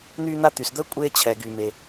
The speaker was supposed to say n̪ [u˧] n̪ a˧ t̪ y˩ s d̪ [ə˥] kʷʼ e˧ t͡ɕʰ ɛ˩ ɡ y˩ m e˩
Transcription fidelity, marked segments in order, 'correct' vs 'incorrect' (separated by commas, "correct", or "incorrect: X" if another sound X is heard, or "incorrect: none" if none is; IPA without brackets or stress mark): incorrect: y˧, correct